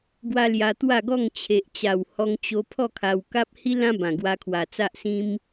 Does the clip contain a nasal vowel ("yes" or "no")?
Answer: yes